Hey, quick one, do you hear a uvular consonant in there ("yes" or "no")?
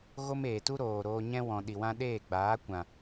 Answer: no